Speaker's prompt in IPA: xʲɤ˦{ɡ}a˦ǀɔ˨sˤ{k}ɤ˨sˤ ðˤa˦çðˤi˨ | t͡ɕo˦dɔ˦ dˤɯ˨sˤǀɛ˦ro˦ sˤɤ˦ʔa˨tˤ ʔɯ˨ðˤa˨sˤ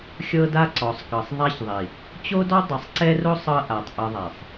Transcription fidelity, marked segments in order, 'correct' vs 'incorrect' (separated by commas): incorrect, correct